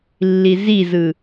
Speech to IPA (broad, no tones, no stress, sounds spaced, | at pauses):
lː i z i z ɯ